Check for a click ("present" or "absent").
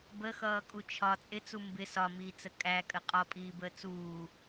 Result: absent